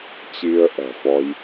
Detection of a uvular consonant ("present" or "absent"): absent